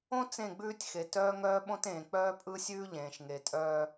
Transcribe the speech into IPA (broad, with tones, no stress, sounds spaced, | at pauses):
õ˦ t͡s ẽ˦˨ ɡ͡b ʉː˦ tʲ x e˨ t œː˦ ŋ œː˦ ɓ õ˦ t ẽː˨ k͡p œː˦ pʼ ɯ˦ sʲ ʉː˦ ʎ ẽː˨ ʃ ŋ e˨ tʼ œː˦